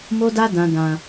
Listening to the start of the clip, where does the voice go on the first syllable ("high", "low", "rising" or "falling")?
high